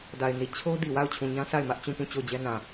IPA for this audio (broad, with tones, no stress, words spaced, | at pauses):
da˨ɪ̯ni˨ t͡ɕʰo˦di˨wa˦˨ʊ̯ t͡ɕʰũ˨ɲã˦ sʰa˦˨ɪ̯mä˦ʔ t͡ɕũ˦˨pũ˦˨ t͡ɕo˦˨ʊ̯d͡ʑɛ˦nã˨